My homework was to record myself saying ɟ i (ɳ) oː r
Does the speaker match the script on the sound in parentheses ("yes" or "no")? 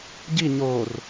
no